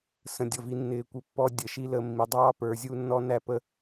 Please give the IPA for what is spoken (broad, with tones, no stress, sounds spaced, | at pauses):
s ə̃˨ dʲ ʌ˨ v i˧ nː ɪː˨ kʷ ə˨ pː ɔ˧ dʲ əː˨ ʃ i˦ l əː˧ mː i˨ dˤ ɑː˦ p ə˞˧ zʲ u˦ nː ɔ˦ n æ˦ p ə˦